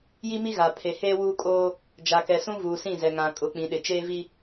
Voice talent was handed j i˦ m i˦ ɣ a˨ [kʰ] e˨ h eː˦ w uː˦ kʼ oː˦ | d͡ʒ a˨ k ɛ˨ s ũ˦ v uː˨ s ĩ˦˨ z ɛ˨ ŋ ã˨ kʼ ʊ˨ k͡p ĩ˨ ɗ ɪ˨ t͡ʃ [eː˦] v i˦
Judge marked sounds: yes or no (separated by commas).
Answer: no, yes